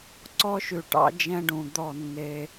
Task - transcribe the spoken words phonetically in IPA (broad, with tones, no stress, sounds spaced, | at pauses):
ǀ ɔ˦ ʃ ʉ˨ ʈ ɑ̰˦ d͡ʒ ɛ̃˦ ɖ ũ˨ d̪ ɔ˦˨ nː e˦